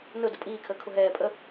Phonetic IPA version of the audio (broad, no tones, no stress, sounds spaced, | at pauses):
n ʊ d ə pʼ iː kʰ əː kʰ ʊ ɦ ɛː pʼ ə